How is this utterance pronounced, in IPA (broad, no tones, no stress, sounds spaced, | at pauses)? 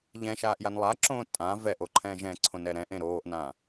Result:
ʎ ɛ̃ ʃ aː ʔ j a n lˠ a ǁ õː tʼ ã v ɛ ʔ o ǃʰ ɛ̃ː ʒ ɛ̃ ǀʰ õ n ɛ ɾ ɛ̃ ʔ ẽ ɾ oː ʔ n ã